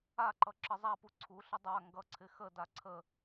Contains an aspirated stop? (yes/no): yes